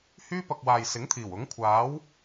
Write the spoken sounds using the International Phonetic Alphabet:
h yː˥ p ɐ˧ k̚ w aː˨ j s ɪ˨˥ ŋ t̪ʰ iː˨˩ w ʊ˨˥ ŋ kʷʰ aː˨˥ w

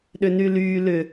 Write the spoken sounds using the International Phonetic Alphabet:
ɗ ʏ n y l yː l ʏ

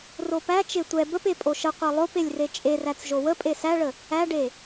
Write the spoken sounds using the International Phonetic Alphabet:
r o p æ t͡ʃ e tʷ ɛ b ə p e pʼ o ʃ ə qʷ e lˠ o p e lʲ r e t͡ʃʼ e r æ t͡s ʒ o w ə pʼ e s æ ɭ ə | æ ɖ e

